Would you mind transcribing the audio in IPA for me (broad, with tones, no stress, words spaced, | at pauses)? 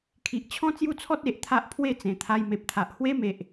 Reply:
kʰi˨ʔt͡ɕʰɔ̃˦ t͡sju˦t͡sʰɔ˦t̚ e˨ʔt̪ʰa˦ʔ pʰwe˥˧t͡sẽ˨˩t̪ʰa˧j me˨p̚t̪ʰa˨ʔ hwe˦me˨ʔ